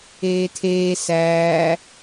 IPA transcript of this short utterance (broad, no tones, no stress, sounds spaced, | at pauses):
eː tʰ eː s æː